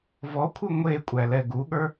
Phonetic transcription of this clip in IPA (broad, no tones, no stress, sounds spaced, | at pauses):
v ɔ kʷʰ ɨ ŋʷ e kʷʼ æ l ɛ ɡ u ɠ ə˞